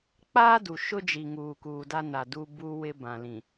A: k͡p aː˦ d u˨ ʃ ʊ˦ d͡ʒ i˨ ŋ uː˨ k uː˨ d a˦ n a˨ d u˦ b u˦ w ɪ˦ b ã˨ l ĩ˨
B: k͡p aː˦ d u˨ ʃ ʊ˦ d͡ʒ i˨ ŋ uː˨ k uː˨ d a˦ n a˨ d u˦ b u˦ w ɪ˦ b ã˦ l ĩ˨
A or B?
A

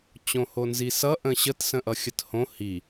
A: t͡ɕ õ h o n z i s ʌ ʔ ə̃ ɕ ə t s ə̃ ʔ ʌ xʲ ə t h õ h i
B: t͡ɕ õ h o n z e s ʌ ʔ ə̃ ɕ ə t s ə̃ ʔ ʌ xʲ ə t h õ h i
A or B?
A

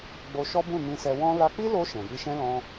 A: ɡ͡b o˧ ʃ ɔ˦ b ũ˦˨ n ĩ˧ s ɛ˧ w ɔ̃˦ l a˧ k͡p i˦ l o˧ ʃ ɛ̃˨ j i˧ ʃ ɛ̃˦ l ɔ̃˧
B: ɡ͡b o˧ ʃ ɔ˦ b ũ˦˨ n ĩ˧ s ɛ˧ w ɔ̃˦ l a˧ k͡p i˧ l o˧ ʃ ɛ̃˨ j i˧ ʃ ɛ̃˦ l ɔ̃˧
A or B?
A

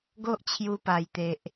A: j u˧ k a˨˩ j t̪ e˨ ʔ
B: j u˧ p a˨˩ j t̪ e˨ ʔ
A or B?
B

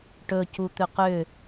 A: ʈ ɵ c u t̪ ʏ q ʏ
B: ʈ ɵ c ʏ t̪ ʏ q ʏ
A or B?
A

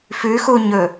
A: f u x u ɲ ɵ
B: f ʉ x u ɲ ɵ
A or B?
B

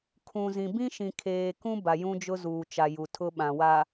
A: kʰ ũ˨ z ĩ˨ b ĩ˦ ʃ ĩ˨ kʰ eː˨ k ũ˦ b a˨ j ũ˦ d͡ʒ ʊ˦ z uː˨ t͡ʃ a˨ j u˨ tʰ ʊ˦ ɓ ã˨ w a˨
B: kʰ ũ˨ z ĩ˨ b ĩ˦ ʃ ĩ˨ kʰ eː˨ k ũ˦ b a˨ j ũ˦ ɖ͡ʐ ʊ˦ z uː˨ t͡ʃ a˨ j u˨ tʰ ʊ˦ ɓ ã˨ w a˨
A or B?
A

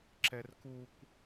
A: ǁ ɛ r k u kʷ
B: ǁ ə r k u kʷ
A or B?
A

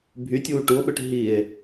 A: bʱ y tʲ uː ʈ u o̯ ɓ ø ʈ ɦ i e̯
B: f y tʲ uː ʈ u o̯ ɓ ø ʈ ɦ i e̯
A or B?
A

